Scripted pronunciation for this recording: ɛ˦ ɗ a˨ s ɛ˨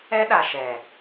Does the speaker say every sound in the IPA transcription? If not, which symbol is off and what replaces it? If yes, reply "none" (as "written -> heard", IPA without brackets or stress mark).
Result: s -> ʃ